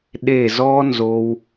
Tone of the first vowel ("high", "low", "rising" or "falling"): falling